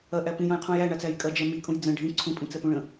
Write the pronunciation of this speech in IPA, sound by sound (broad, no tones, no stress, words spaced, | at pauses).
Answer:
ɐʔæ pĩjɐ̃jqʰũj æɳat͡sæj kʼɐd͡ʒɛ mikʼũj d͡zə̃ ɖʱĩ ǀʰũpʼĩt͡sɛpũ ɭə̃